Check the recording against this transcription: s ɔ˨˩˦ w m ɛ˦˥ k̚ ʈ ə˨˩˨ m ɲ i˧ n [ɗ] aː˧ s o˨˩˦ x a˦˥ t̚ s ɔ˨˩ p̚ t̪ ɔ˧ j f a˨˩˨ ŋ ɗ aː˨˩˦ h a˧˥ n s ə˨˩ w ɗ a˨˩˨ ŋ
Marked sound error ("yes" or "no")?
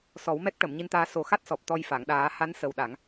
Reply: yes